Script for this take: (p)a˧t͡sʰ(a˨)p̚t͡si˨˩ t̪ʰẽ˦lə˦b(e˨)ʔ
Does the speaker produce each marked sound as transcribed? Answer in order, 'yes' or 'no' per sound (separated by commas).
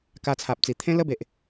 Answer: no, yes, yes